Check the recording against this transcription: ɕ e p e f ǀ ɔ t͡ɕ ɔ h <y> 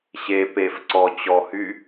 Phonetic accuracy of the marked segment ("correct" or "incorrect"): correct